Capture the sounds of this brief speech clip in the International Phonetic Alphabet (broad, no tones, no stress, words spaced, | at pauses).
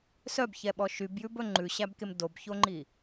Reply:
sœbçɛɓɔ ʃybjʉbɵ ŋ͡ǃʉɕæbkem dobçoŋ͡ǃi